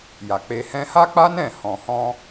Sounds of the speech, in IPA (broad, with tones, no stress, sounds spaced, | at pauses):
j a˨ k͡p e˧ h ɛ̃˧ h a˦ k͡p a˦ n ɛ̃˦˨ h ɔ̃˨ h ɔ̃˧